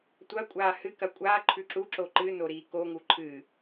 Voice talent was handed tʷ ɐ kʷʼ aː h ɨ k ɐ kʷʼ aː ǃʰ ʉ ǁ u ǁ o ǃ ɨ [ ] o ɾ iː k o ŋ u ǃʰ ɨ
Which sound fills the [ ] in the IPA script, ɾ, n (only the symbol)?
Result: n